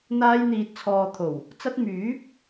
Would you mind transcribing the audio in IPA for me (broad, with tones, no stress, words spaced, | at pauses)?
n̪aː˥jn̪iː˧t̚t͡sʰɔː˧ t̪ʰo˨˩w | t͡sɐ˧t̚myː˨˥p̚